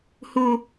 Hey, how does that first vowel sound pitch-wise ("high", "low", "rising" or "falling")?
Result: high